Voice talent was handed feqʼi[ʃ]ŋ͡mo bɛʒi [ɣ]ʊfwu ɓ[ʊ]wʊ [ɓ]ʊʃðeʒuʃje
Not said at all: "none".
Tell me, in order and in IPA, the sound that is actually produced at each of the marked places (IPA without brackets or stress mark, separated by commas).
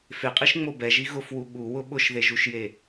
ʃ, ɣ, u, ɓ